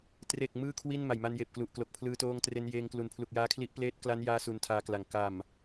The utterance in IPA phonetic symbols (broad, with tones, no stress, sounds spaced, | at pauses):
t r e˨˩ k̚ m ɯː˥˩ kʰ w i˥˩ n m a˨˩ j m a˧ n j eː˨˩ p̚ k l u˨˩ ʔ k l o˨˩ k̚ pʰ l ɯː˧ t oː˧ ŋ t r e˧ n j eː˧ ŋ k l u˨˩ n pʰ l u˨˩ k̚ j aː˦˥ kʰ l i˦˥ ʔ p l eː˦˥ t̚ k l a˦˥ n j aː˦˥ s u˧ n tʰ aː˦˥ k l a˨˩ ŋ k a˨˩ m